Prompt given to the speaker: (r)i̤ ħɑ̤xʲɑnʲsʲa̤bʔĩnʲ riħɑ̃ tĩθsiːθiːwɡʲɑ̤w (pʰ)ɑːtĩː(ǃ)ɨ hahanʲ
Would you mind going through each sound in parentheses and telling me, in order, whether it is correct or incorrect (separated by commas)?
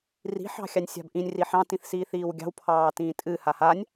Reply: correct, correct, incorrect